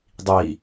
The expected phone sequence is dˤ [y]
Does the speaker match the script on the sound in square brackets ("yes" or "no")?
no